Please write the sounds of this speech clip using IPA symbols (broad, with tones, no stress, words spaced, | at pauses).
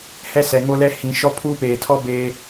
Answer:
hɛ˦sɛ˨ŋo˦lɛ˦ hĩ˨ ʃɔ˦pʰuː˦peː˨tʰɔ˦ beː˦